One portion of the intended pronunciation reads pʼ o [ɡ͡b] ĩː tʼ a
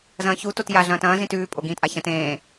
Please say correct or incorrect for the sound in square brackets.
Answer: incorrect: ɡ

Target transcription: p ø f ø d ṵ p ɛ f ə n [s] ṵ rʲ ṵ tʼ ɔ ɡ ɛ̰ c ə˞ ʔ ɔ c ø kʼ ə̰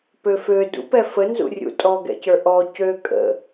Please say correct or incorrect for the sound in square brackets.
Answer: incorrect: z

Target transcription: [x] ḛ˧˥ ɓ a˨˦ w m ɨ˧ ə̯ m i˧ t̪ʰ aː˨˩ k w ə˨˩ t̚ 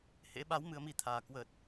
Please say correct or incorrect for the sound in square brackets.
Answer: incorrect: h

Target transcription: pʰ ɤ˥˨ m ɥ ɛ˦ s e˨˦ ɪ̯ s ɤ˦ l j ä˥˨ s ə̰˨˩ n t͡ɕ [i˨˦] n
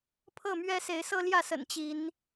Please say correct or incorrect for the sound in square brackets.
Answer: correct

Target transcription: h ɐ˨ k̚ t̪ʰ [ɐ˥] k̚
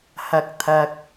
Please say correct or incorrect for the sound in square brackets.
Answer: incorrect: ɐ˨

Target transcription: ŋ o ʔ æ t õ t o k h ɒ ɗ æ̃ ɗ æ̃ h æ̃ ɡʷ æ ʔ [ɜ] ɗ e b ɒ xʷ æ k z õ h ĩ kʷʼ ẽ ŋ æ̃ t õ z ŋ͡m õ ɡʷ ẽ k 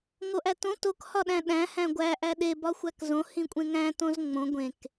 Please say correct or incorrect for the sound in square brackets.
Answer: incorrect: æ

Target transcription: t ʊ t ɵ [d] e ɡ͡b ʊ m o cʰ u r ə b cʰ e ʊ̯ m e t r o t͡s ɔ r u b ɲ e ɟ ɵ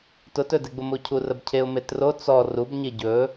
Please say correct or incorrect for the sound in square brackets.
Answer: correct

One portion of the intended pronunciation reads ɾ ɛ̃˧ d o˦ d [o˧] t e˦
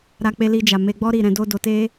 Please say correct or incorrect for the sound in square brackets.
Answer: correct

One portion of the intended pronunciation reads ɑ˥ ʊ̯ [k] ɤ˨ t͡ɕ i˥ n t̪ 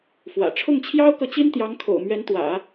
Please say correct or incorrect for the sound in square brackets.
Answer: correct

